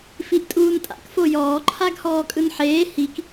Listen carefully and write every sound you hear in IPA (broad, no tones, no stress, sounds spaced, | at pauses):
f i ʔ tʼ uː n tʼ a̰ k f o j ɔː ǃʰ a ɡ h ɔː kʼ ɯ n ħ eː h i k